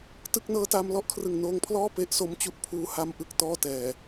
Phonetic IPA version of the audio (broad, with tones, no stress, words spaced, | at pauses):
tɯ˥˩k̚ nɤː˦˥taː˧mlɔ˥˩ʔkʰrɯ˨˩ŋ noː˧ŋpʰlɔː˥˩ pe˦˥ʔso˦˥m t͡ɕu˥˩ʔpʰuː˦˥ ha˧mʔɯ˨˩k̚ tɔː˥˩tɛː˨˩